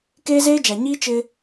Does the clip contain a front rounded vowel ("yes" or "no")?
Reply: no